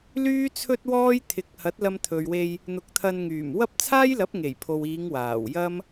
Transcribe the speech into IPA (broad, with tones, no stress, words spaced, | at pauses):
lyː˥t͡sʰɵ˥t̚wɔː˥j t̪ʰɪ˨˥k̚ hɐ˨˥t̚lɐ˧mt̪ʰɵ˨ɥwe˧j | n̪ʊ˨˥k̚t̪ʰɐ˧nŋyː˨˩m wɐ˥p̚ t͡sʰaː˥jlɐ˨˥p̚ŋe˨˩j pʰo˨wiː˨˧ŋ waː˨˩wjɐ˥m